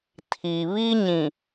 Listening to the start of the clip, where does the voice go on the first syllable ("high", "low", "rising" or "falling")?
low